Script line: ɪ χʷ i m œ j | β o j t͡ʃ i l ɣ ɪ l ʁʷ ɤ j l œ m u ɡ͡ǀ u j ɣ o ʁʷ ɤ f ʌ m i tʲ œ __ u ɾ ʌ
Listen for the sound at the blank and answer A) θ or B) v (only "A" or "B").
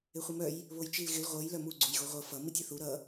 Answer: A